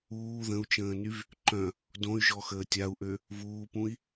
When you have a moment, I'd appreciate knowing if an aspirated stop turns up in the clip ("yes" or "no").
no